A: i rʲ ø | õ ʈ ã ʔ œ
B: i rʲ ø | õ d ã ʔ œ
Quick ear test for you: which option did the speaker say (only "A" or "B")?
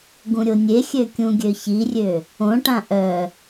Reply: A